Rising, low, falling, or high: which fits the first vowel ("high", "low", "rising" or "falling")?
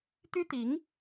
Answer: high